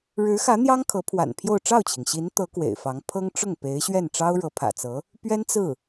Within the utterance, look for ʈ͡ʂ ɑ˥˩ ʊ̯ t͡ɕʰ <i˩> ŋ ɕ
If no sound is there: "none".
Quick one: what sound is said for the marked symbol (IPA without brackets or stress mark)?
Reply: i˩